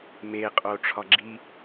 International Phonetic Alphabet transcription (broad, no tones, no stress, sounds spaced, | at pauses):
m e qʼ o ʈ͡ʂʰ ɒ ɡ͡ǁ i